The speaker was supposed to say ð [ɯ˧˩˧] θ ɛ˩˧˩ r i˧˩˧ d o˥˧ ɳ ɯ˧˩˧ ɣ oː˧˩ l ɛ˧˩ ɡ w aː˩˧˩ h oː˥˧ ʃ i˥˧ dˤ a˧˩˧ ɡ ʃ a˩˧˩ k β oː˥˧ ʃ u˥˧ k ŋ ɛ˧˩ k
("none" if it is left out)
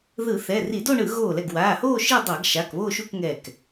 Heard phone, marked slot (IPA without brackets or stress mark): ɯ˧˩˧